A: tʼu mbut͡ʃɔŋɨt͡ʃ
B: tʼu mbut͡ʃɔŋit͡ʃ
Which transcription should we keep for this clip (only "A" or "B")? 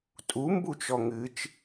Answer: A